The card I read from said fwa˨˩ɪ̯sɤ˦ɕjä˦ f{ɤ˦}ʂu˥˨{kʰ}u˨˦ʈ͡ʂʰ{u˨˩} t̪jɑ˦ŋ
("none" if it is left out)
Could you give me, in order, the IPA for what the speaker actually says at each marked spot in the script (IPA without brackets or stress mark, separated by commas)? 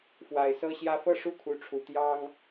ɤ˥˨, kʰ, u˨˩